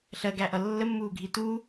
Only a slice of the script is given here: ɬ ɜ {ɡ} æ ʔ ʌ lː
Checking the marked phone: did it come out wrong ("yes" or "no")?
no